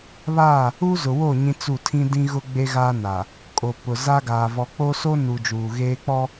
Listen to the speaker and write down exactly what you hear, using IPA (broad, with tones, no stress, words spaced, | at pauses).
βa˦˨ | u˦zʊ˨wo˦˨ ɲĩ˦t͡su˦˨ tʰĩ˦dĩ˦ ɣʊ˦ɡ͡be˦ ɣaː˦na˨ | kʼo˨pʊ˨ za˦ɡaː˨ vɔ˨k͡poː˦so˦nu˨ d͡ʒuː˨ɣeː˦k͡pɔ˦